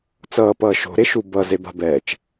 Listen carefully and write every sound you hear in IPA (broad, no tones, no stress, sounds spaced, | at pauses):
t͡s ʌː p ʌː ʃ o̤ ɾ e ʃ u b ʌ z e b a̤ b ɛː t͡ʃ